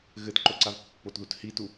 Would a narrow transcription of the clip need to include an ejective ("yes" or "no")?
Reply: no